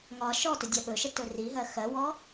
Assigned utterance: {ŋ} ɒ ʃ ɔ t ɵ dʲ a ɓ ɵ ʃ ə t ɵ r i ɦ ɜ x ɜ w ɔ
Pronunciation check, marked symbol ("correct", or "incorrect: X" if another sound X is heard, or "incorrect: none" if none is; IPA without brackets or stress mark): correct